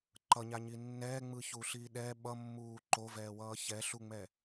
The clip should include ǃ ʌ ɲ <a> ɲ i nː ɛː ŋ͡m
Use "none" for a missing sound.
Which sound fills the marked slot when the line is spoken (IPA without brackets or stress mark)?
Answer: a